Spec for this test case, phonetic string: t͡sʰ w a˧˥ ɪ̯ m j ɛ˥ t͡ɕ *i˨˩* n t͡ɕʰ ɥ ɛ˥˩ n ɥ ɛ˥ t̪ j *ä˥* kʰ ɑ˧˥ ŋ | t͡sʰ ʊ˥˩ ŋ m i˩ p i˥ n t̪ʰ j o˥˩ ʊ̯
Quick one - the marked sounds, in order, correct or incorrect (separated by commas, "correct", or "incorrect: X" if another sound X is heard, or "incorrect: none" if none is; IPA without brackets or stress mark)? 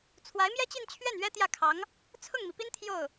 incorrect: i˥˧, incorrect: ä˥˩